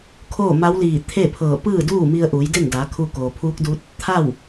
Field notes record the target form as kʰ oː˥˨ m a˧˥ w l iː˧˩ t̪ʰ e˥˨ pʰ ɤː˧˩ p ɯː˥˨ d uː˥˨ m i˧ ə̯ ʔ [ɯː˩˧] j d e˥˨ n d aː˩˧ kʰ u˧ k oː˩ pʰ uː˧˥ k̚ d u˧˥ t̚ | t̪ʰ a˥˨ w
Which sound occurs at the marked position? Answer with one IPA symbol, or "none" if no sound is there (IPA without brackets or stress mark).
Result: uː˩˧